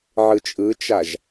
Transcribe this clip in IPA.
ʕɯt͡ʃʼɯt͡ʃaʒ

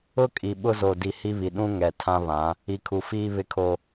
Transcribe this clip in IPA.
ʊ˦kʼi˨ ɓʊ˦zo˨di˨ hi˦βi˨ ɗũ˦ ŋɛ˨tʰã˦βã˨˦ | i˨kʰu˨fiː˦ βɪ˦kʰo˦

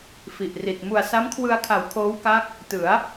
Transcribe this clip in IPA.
fi˨˩ʔri˨˩t̚ mu˨˩a̯sa˦˥mkʰwɯ˧a̯kʰa˩˦w kʰoː˦˥wka˦˥k̚ | tɯ˩˦a̯

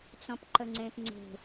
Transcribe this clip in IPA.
t͡sɔ̃pǃəŋ͡ǀẽpŋ͡ǀe̤

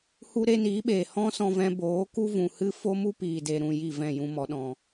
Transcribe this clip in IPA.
hu˦ɾe˦niː˨˦ɓeː˨ hɔ̃˦sɔ̃˧vɛ̃˧ boː˨˦ku˦vũ˨hɨ˦ fo˦mu˦piː˨de˨ ɾũ˨ ji˦˨vɛ̃˦˨ jũ˧ mɔ˨˦ɗɔ̃˧

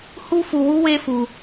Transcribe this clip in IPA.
hu˦fu˧ wu˦we˦fu˧

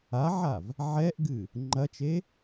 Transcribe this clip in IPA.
aʕav | ʕɛʔɡɨ | ŋ͡ǃɐt͡ʃe

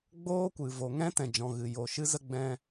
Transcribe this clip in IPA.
ɡ͡boː˦kʷɨ˨ vo˨ ŋɛ̃˦tɛ̃˨d͡ʒɔ̃˨ɣɨ˨ jo˨ʃɨ˦zə˦ ɡ͡bɛ̃˧

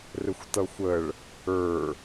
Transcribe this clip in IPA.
rɪxʷtʌxʷəɭ | ə˞

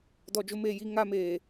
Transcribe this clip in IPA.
dɔ˨d͡ʒʊ˦meː˨ji˦ ŋa˦meː˨

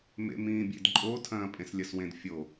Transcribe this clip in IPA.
mḛmĩːbʲḛdǃʼo tʰɐ̃ːpʼẽslʲɐswẽd fʲo

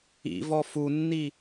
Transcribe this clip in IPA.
ḭ vɔfunːi

